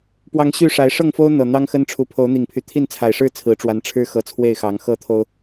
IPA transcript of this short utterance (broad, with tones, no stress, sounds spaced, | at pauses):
p w ɑ˨˦ ŋ ɕ y˥˨ ʂ a˨˦ ɪ̯ ʂ ɤ˥˨ ŋ f o˦ ʊ̯ n̪ ɤ˨˩ n̪ ɑ˦ ŋ x ə˦ n ʈ͡ʂʰ u˨˦ pʰ o˨˦ ʊ̯ n̪ i˨˩ ŋ pʰ y˨˦ t̪ʰ i˥˨ n t͡sʰ a˨˩ ɪ̯ ʂ ɻ̩˥˨ t͡sʰ ɹ̩˨˦ ʈ͡ʂ w a˨˦ n ʈ͡ʂʰ ɻ̩˦ x ɤ˨˦ t͡sʰ w e˥˨ ɪ̯ x ɑ˨˦ ŋ x ɤ˦ t̪ʰ o˦ ʊ̯